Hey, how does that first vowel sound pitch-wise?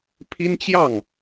high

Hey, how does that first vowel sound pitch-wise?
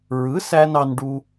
rising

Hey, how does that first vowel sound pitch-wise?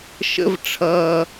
rising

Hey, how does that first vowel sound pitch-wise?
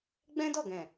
high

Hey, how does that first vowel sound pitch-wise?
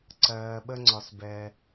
low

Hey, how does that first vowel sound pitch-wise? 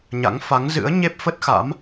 rising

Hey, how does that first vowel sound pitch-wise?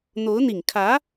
rising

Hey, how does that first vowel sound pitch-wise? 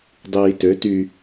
low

